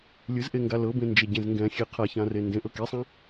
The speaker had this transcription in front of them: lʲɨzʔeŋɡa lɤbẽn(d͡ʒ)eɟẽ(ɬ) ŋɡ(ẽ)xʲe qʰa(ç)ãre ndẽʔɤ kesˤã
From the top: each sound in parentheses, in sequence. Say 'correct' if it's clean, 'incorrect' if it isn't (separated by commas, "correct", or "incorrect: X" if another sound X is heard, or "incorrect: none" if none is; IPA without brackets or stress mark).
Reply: correct, incorrect: z, incorrect: ɛ̃, correct